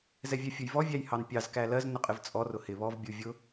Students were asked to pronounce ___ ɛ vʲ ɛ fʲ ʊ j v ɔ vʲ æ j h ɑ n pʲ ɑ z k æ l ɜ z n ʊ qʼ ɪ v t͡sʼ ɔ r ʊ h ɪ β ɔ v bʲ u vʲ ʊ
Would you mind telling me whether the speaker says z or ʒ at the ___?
z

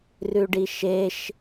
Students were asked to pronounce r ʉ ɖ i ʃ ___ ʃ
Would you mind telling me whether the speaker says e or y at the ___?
e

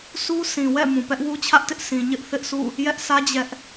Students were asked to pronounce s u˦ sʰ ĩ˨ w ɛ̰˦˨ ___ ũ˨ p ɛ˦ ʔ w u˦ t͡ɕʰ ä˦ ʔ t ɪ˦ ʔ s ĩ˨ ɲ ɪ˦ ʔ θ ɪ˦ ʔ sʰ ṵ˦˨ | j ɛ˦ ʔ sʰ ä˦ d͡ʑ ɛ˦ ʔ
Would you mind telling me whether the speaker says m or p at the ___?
m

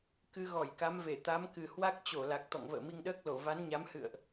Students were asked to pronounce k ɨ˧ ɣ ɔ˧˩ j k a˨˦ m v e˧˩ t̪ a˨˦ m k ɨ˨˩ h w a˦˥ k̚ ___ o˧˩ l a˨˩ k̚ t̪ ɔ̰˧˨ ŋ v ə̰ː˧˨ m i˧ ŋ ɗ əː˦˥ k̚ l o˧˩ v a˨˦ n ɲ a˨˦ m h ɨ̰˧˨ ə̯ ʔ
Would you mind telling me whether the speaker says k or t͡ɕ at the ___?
t͡ɕ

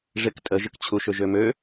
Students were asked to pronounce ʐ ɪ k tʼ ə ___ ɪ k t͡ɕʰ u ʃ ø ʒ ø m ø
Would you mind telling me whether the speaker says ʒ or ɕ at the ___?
ʒ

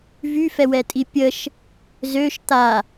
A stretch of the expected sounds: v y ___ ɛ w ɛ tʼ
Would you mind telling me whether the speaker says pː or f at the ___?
f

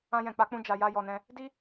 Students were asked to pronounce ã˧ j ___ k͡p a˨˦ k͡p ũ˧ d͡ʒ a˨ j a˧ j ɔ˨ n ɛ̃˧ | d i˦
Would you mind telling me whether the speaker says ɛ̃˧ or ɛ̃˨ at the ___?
ɛ̃˨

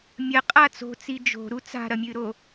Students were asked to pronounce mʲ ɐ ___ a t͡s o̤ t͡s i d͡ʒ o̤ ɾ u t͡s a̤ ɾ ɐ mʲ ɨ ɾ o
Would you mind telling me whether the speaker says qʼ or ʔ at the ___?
qʼ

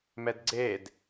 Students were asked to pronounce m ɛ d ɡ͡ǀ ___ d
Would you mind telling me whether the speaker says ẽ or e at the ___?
e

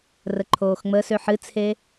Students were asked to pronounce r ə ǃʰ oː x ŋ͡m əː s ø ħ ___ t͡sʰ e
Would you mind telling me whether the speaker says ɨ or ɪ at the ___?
ɨ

